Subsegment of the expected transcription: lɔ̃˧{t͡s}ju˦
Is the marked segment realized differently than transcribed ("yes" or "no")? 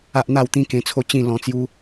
no